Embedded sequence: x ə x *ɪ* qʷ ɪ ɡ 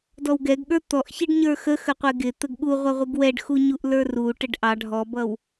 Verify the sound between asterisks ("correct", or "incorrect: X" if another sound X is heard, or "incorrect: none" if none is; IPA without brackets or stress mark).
incorrect: ə